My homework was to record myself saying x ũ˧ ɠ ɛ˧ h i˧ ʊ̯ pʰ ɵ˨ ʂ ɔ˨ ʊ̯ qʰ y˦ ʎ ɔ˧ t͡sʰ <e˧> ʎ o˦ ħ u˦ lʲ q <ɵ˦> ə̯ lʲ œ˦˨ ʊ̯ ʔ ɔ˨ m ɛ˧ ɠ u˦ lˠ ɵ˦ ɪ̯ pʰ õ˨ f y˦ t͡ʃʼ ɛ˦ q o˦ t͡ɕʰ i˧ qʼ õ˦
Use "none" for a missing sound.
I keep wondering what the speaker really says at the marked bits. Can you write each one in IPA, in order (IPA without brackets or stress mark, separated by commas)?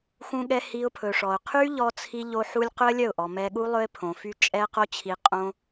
i˧, ɵ˦